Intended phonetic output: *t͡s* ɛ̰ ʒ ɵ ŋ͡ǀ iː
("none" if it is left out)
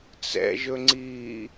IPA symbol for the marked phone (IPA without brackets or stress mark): t͡s